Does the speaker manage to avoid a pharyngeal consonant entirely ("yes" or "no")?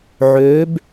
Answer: no